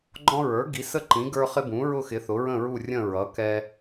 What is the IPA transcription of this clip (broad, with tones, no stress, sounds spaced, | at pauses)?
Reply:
ɡ͡ǃ ɔ̃˦ ɹ ə˞˩˥ ɡ i˩˥ s ə˥˨ ǃ ĩ˩˥ ɡ ə˞˦ χ ɪ˦ b ũ˩˥ ɹ ʊ˥˨ x ɪ˩˥ θ ʊ˩˥ ɹ ə̃˥˨ ɹ u˥˨ rʲ ə̃˥˨ ɹ ʌ˩˥ k ɛ˦